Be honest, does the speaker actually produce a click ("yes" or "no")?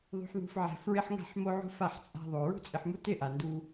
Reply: no